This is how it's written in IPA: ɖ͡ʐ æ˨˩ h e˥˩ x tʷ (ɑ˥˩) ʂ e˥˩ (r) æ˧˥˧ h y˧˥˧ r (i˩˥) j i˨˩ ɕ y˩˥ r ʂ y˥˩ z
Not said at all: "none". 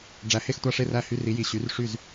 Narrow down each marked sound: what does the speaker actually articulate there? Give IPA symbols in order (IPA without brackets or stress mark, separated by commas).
ɑ˥˩, r, i˩˥